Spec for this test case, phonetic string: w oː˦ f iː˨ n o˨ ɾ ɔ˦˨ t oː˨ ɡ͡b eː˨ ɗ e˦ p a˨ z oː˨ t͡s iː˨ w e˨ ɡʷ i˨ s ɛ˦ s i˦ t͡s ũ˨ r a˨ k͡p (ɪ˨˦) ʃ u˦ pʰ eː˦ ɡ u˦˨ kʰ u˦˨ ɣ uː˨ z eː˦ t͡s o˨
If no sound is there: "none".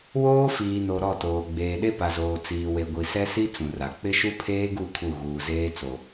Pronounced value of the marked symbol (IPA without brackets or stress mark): ɪ˦